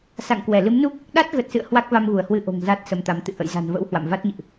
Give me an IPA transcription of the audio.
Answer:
s a̰˧˨ ŋ k w ɛ˧˩ l ɨ˨˦ m n u˦˥ k̚ | ɗ a˦˥ t̚ ɣ ə˨˩ t̚ s ɨ̰˧˨ ə̯ h w a˦˥ k̚ v a˧ m ɣ u˧˩ ə̯ h w ɨ˧ ʔ o̤˨˩ ŋ z a˦˥ t̚ s ə˧ m t̪ a˨˦ m t̪ ɨ̰˧˨ ʔ ə̰˧˨ j z a̤˨˩ n v ə̰˧˥ w h w a̰˧˨ m v a˦˥ t̚ ɲ ɨ̰˧˨ ʔ

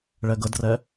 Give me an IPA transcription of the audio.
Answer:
ɭ ɛ ɡ ə d r ɛ

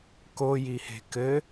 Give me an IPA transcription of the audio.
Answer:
k o j i h e̤ k ɘ

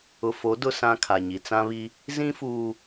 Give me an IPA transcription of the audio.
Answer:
ʊ˨ f o˨˦ d ʊ˦ s ã˦ kʰ a˨ ɲ i˨ t͡s ã˦ β i˦ | z ĩ˦ f uː˨

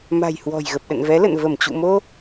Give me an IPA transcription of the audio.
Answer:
m a̤˨˩ j h w ɔ̤˨˩ j ɣ ə˨˩ p̚ ɗ ə̰˧˨ n v ɛ˨˦ l ə̰˧˨ n v ə˧˩ m t͡ɕ ṵ˧˨ m o˧

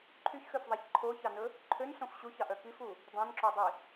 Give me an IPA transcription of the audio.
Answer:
ǃʰ y ç x ø f ðˤ æ ç ǃʰ o ç ɑ n ɵ | ǃʰ ø n ɬ õ f ɕ u ç ɑ ʔ œ k i f u | dˤ õ n ǁ ɔ dˤ i

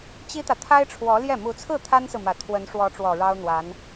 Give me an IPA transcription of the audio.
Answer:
t͡ɕ i˥ t̪ ä˨ t̪ʰ a˥ ɪ̯ ʈ͡ʂʰ w ɔ˧˥ l j ɛ˥˩ m u˧˥ t͡sʰ ɹ̩˥˩ t̪ʰ a˥ n s ɹ̩˨ m ä˨˩ t̪ʰ w ə˧˥ n ʂ w ɔ˧˥ ʈ͡ʂ w ɔ˨˩ ɻ ɑ˥ ʊ̯ n̪ w a˧˥ n

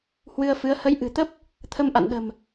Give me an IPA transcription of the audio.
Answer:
h w ɨ˧ ə̯ f ɨ˨˦ ə̯ h ə˨˦ j ʔ ɨ̤˨˩ t̪ ə˦˥ p̚ | t̪ʰ ə˧ m ʔ a̰˧˨ n ɗ ə̤˨˩ m

